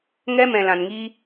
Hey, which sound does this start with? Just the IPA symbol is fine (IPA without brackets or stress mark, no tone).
ŋ